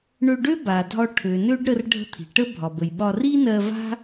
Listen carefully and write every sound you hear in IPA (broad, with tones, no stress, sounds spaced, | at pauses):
ɳ ø˧ ɖ ø˥ b a˩ dʱ ɒ˧ ʈʰ ø˩ n ø˧ ɖ ɾ ə˧ r ɖʱ ə̤˧ t̪ʰ i̤˩ ʈ ə˥ bʱ ɒ˩ b ə˩ j ɓ ɒ˧ r i˥ n ɜ˧ v a̤˥